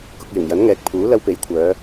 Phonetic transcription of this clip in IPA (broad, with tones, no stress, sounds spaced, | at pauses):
k ʊ˨ k̚ j ɪ˨˩ ŋ j ɐ˨˥ n ŋ ɛː˨ k̚ pʰ uː˨˥ l ɐ˧ w p e˨˥ j kʷʰ œː˨˧